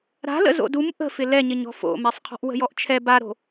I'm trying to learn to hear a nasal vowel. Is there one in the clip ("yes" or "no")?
no